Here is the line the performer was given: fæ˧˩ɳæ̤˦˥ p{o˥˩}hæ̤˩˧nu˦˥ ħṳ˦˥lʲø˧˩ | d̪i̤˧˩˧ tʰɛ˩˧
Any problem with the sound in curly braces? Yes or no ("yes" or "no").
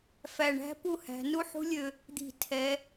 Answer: yes